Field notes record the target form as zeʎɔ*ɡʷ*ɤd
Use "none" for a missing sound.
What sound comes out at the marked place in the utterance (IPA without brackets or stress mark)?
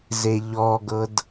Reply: ɡ